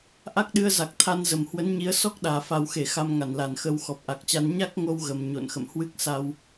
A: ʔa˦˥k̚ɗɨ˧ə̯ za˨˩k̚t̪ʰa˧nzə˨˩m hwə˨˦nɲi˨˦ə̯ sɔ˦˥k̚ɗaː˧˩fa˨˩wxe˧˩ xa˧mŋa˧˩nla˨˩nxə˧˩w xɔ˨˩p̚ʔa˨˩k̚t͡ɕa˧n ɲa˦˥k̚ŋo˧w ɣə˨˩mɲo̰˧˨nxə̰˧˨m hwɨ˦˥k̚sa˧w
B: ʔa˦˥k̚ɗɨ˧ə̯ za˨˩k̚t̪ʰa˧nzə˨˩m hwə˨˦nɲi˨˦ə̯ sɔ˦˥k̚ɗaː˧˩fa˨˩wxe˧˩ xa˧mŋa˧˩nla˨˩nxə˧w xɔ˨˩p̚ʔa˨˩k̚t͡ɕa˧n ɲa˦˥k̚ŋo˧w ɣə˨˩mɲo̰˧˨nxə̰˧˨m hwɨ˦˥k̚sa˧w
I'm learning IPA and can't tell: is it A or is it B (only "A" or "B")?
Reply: B